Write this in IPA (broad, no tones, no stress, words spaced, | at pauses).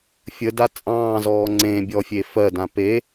fʲəda t͡sʼɑ̃ːzɔː ŋ͡ǀẽbʲɔfʲe fɜdã pe